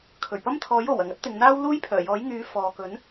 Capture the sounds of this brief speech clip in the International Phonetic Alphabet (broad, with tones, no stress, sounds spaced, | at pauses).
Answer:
kʰ ɵ˨˩ ɥ p ɐ˥ m t̪ʰ ɔː˨˥ j o˨˩ w ɐ˨˩ ŋ ɐ˥ t̚ t̪ ɪ˨ ŋ n̪ aː˥ w l uː˥ j pʰ œː˨˩ j ɔː˨˥ j ŋ yː˨˧ f ɔː˨ k ɵ˨˥ n